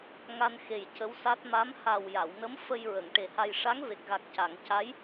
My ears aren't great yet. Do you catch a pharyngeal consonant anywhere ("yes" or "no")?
no